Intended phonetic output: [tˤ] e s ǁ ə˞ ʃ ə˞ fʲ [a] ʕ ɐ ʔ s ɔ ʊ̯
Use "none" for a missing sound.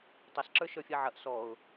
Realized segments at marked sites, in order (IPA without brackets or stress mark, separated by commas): tˤ, a